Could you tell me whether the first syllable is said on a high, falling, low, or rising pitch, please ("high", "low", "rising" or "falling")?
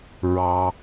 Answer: low